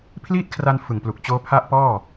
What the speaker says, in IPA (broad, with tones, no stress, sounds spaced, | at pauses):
pʰ l iː˥˩ t̚ kʰ r a˧ n f ɯ˨˩ ŋ p l u˨˩ k̚ t͡ɕ oː˦˥ pʰ a˦˥ ʔ p ɔː˥˩